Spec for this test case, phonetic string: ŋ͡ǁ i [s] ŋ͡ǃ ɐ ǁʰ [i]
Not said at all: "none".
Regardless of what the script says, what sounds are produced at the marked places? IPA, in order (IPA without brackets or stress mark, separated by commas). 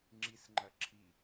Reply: s, i